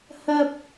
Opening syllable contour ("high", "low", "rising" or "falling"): high